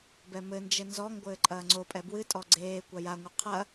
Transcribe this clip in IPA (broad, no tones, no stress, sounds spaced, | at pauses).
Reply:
b ɛ m ɘ n d͡ʒ ɘ n z ɔ ŋ ɡʷ ɘː ǃʼ ɐː ŋ͡ǀ o pʼ ɛ b w ɨ tʼ ɔ ɡ͡ǀ eː kʷ a j a ŋʷ ɨ qʰ ɐ